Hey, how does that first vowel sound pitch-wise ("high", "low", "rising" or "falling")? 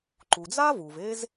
low